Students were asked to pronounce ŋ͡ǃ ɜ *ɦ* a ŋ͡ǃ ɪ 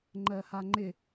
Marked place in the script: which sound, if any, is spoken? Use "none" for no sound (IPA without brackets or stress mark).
h